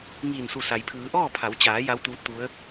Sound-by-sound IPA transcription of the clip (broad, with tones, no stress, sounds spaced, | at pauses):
ŋ iː˧˩ n s u˧˩ s a˩ j pʰ ɯː˩˧ ʔ ɔː˥˨ pʰ a˩˧ w t͡ɕ aː˩˧ j a˧˥ w t̪ uː˧˥ t̚ t̪ u˧˥ ə̯